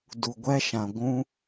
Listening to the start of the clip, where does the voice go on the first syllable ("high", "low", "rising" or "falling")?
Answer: low